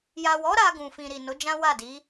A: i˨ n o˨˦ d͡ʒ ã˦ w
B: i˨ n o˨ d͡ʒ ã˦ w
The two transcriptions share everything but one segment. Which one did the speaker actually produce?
A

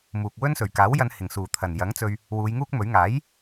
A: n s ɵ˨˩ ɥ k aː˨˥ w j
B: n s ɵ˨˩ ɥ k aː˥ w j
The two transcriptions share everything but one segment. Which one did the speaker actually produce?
A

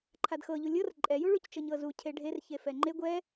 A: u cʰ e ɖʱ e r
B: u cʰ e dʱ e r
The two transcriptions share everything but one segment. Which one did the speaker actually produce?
A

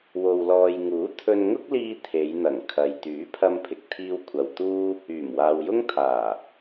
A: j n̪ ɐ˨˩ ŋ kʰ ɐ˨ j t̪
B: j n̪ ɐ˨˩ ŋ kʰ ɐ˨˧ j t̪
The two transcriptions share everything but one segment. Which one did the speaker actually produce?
A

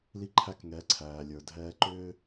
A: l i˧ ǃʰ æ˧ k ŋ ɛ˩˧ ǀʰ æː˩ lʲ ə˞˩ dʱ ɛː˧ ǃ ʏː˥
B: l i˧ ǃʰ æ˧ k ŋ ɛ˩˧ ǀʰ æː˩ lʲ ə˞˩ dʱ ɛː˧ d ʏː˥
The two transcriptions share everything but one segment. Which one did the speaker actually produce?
A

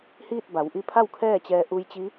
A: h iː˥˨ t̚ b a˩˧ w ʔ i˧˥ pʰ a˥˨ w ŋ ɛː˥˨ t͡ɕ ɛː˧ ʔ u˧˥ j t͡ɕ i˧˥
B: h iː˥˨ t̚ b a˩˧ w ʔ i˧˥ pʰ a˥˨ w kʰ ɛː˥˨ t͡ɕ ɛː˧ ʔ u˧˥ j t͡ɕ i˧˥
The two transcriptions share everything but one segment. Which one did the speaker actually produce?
B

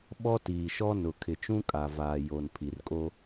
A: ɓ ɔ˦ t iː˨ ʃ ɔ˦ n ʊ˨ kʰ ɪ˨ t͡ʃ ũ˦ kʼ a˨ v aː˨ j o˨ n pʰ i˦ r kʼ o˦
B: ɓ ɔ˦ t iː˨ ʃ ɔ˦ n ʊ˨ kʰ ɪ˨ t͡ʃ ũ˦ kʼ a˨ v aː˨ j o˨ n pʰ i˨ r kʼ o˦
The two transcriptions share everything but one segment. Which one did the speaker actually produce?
B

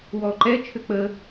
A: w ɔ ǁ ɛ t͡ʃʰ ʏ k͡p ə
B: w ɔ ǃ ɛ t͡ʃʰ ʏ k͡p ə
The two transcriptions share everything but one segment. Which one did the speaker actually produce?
B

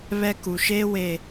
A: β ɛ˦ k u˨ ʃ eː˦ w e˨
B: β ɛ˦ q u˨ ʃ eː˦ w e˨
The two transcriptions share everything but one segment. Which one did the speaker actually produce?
A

